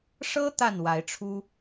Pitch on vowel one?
high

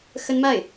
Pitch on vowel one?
high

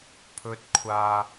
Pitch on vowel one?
low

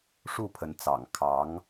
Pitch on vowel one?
falling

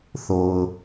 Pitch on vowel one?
low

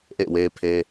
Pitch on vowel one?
falling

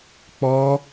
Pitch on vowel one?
high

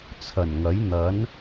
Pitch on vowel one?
low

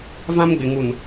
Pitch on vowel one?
high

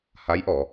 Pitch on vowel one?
rising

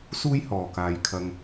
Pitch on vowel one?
high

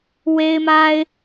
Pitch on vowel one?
high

